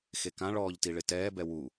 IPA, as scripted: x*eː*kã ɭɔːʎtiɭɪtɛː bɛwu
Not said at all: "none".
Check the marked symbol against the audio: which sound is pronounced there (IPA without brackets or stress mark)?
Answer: e